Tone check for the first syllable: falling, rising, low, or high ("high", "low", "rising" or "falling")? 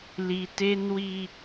high